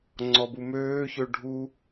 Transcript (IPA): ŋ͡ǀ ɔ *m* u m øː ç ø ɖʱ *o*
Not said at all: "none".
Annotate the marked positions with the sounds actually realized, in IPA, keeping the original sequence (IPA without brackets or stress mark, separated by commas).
b, u